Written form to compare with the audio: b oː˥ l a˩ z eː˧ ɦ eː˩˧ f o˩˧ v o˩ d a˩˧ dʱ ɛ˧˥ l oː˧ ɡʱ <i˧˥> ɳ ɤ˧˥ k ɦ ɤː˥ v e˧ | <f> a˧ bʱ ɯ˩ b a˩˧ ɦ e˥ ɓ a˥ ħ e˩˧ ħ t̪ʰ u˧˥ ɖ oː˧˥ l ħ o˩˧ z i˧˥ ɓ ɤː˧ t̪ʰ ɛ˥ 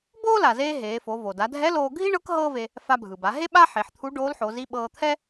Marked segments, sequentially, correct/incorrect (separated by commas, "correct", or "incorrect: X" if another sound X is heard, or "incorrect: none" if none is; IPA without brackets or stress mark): incorrect: i˥, correct